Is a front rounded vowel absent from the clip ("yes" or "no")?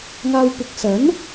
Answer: yes